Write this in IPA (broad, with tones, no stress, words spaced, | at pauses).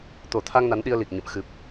t̪o˨˩t̪ʰa˧ŋ na˨˦nɗi˧ə̯li˨˩k̚ ɲə̰˧˨m xɨ˨˩p̚